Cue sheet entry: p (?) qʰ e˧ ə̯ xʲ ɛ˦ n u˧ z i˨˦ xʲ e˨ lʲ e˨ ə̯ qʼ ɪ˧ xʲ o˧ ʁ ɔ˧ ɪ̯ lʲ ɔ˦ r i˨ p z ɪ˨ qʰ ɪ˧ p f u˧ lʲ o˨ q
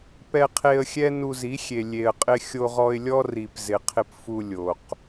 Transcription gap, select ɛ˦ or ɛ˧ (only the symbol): ɛ˧